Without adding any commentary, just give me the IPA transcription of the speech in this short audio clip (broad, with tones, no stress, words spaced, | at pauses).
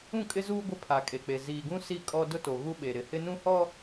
ũ˦˨kʼɪ˦zuː˦ ɡʷɪ˦˨pʰa˨kʼe˨k͡pe˨ ziː˨ɡũ˦si˦˨ kʼɔ˦ dʊ˦to˨ ɣu˦ɓe˨ ɾɪ˨hɪ˦nũ˦hɔ˦